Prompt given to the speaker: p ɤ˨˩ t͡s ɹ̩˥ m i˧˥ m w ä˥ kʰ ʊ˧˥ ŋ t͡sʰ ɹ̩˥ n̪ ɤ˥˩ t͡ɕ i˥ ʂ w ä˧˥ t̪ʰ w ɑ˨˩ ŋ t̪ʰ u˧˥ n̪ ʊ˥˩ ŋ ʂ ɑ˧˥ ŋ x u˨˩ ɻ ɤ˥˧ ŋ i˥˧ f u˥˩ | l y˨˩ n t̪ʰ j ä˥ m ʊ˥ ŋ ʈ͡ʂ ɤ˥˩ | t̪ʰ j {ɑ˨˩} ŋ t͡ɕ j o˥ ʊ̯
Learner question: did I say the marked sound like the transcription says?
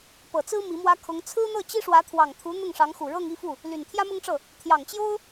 yes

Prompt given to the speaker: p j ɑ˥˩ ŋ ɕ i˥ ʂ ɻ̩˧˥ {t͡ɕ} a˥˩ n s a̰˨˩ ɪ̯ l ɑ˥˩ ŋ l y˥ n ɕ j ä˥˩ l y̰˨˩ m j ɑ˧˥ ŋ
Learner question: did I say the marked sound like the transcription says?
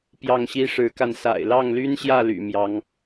no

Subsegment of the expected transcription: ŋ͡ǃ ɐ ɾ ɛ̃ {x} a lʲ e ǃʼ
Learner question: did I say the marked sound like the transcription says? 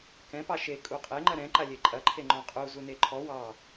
no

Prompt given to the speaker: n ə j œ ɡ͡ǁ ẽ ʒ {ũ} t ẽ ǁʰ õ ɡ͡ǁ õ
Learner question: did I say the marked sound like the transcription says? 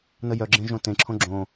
no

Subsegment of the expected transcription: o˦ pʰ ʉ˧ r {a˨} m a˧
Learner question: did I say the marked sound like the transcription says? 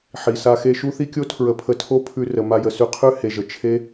no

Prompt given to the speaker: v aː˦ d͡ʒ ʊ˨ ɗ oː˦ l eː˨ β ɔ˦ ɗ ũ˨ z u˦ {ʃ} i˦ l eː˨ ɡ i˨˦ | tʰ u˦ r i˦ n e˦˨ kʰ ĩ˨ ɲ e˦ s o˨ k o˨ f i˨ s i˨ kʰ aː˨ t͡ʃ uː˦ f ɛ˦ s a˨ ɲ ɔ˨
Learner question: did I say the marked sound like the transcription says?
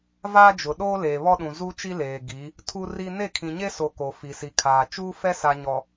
no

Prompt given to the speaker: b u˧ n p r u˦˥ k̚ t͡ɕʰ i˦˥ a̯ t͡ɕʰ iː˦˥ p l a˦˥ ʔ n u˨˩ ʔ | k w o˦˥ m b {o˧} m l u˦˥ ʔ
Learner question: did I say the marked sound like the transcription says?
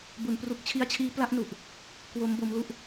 no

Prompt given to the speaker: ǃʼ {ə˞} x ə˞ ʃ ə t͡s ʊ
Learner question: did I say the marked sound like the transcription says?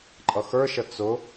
no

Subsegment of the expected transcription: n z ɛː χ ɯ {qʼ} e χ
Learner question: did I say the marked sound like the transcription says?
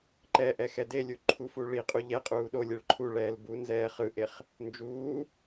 no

